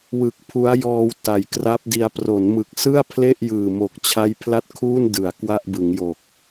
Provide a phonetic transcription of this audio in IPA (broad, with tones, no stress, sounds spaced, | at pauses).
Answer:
w ɯ˨˩ k̚ pʰ u˦˥ a̯ j ɔː˧ w t a˨˩ j k r a˦˥ p̚ d i˧ a̯ p r o˩˦ n m ɯ˨˩ k̚ s ɯ˥˩ a̯ pʰ l e˥˩ ʔ j ɯː˨˩ m o˨˩ k̚ t͡ɕʰ a˦˥ j pʰ l a˥˩ t̚ kʰ uː˥˩ n d ɯ˩˦ a̯ k w a˥˩ ʔ b ɯ˩˦ ŋ j o˨˩ k̚